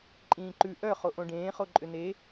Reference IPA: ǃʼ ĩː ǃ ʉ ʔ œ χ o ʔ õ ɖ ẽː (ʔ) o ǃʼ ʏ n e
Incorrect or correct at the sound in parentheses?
incorrect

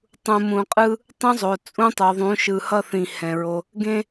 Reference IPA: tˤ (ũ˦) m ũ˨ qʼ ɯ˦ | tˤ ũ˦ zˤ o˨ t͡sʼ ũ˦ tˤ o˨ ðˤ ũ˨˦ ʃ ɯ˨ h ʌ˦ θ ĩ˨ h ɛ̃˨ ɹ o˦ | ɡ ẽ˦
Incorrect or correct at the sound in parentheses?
incorrect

